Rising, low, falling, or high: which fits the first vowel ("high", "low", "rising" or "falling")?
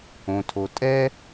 low